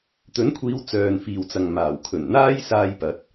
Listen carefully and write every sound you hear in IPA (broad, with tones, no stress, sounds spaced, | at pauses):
t̪ ɵ˨˥ n kʷʰ iː˨˧ w t͡s œː˨ n f iː˨ w t͡s ɐ˨ ŋ m aː˨˩ w kʰ ɵ˨˩ n n̪ aː˥ j s aː˧ j p ɐ˨˥ t̚